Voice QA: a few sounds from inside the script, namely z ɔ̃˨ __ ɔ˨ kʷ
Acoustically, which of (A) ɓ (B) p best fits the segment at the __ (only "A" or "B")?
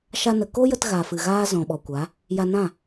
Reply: A